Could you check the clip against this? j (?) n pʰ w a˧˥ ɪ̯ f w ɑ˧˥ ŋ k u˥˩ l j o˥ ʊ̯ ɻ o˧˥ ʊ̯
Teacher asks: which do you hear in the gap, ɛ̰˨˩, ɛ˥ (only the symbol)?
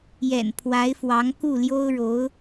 ɛ̰˨˩